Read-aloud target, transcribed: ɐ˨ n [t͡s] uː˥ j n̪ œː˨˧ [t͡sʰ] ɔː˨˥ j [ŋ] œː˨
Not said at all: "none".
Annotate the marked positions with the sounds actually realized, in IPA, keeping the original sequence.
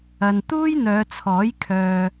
t̪, t͡sʰ, kʰ

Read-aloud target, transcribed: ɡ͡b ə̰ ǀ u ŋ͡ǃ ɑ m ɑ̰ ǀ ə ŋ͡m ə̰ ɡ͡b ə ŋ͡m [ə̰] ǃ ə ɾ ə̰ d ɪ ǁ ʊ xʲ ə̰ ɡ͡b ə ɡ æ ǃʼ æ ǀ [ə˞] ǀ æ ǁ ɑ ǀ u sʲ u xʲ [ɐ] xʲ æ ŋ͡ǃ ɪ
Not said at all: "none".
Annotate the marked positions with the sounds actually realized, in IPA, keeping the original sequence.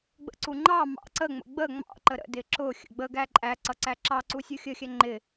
ɑ̰, ʌ, ə

